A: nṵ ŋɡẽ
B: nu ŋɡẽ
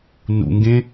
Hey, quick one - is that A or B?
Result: A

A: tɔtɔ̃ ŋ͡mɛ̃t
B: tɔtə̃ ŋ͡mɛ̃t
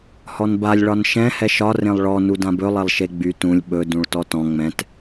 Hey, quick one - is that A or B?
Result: A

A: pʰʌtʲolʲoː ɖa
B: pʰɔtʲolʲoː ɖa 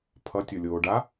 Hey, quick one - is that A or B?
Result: A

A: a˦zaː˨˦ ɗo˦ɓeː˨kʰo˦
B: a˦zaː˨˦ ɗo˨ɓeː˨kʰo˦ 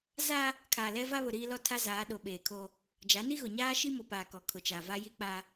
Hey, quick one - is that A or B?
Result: B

